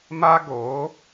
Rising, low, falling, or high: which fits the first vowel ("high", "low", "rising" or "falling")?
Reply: high